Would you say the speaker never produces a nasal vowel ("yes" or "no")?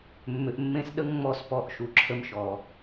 no